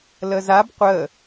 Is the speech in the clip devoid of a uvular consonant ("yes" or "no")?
no